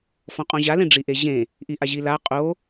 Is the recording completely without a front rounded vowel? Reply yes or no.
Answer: yes